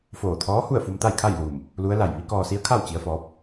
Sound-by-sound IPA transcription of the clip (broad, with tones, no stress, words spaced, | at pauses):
foː˧˩t̪ʰɔː˧˥hu˥˨ə̯fu˧m t̪a˥˨jkʰa˥˨jluː˧˩m | lu˧˥ə̯ la˧˩j ʋi˧˥kɔː˧si˧˥ə̯kʰa˥˨w t͡ɕi˧˥ə̯fɔː˧˥p̚